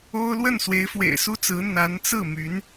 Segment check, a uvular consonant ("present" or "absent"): absent